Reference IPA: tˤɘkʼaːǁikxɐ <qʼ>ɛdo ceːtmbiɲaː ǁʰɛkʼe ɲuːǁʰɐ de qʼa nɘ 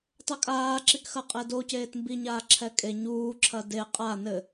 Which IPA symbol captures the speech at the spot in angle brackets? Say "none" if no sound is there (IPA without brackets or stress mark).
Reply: qʼ